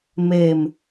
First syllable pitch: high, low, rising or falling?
falling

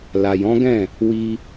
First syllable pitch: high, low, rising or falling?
low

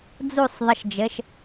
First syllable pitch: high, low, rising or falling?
falling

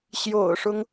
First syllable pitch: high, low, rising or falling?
low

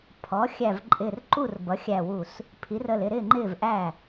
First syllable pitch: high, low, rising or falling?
rising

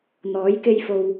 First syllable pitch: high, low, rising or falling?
rising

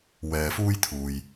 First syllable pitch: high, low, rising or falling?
low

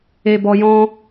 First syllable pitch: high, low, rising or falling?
low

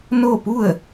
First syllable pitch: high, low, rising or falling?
falling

